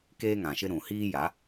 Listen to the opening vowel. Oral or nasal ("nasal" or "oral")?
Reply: oral